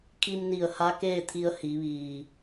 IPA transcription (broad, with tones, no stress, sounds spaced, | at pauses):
kʰ i˧ m n i˧˩ ə̯ h a˧˥ k eː˥˨ t̪ʰ i˧ ə̯ h i˩˧ ʋ iː˩